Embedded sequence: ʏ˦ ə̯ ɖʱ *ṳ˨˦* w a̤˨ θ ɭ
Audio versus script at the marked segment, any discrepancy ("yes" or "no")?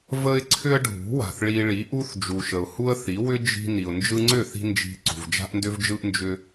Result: no